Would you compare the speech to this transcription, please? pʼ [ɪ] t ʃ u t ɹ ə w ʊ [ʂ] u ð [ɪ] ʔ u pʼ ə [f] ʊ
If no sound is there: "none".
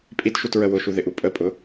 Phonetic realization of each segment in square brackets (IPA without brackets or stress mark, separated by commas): i, ʃ, ɪ, pʼ